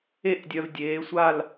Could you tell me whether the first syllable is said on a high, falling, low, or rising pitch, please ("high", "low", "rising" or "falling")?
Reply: falling